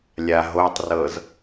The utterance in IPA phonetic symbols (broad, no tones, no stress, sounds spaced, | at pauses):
lʲ a ɦ o tˤ r ɤ z